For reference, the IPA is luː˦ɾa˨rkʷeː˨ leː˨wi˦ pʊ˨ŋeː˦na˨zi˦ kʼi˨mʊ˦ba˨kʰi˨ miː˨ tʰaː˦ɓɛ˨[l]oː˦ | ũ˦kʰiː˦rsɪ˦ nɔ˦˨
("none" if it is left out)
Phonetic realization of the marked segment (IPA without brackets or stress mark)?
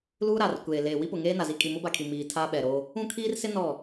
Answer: ɾ